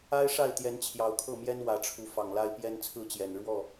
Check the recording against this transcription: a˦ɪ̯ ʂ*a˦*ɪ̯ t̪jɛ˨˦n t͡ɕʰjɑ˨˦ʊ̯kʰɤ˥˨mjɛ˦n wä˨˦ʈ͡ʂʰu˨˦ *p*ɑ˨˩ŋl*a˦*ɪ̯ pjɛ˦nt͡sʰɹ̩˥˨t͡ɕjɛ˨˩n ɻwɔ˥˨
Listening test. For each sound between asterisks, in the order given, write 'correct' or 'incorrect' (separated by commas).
incorrect, incorrect, correct